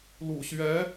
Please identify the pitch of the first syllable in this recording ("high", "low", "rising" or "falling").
low